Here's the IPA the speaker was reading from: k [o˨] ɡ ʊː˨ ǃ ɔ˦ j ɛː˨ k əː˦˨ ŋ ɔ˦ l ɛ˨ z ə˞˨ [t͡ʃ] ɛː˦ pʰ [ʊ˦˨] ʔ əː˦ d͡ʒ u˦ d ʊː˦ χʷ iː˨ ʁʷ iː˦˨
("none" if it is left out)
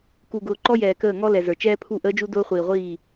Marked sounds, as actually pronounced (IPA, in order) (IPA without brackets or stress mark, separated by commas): u˨, t͡ʃ, u˦˨